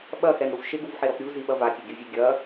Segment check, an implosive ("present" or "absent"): present